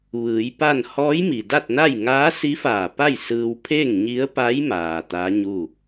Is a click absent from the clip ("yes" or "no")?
yes